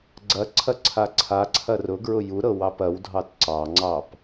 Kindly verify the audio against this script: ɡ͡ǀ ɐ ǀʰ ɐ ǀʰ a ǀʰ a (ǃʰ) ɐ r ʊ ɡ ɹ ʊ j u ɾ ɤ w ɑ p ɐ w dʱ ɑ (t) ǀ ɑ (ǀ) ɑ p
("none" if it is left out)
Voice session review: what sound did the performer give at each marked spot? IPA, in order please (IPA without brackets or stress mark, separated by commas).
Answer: ǀʰ, t, ŋ͡ǀ